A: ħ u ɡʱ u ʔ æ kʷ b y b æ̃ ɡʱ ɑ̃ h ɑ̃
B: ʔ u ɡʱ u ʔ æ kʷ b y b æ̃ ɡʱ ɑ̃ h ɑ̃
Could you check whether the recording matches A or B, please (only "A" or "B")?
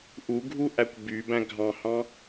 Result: B